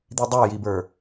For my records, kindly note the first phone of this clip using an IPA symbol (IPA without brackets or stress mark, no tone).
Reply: d̪